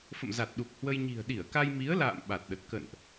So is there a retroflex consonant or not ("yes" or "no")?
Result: no